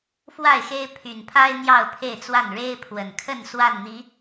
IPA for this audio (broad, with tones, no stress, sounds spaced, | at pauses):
f w a˥˨ ɪ̯ x e˦ ɪ̯ pʰ y˨˩ n pʰ a˦ ɪ̯ n̪ j ɑ˥˨ ʊ̯ pʰ e˥˨ ɪ̯ t͡s w a˥˨ n ɻ e˦ ɪ̯ pʰ w ə˨˩ n kʰ ə˥˨ n s w a˥˨ n n̪ i˨˦